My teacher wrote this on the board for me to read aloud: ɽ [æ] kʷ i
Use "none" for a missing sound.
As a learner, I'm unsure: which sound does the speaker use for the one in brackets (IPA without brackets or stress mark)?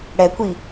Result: ɛ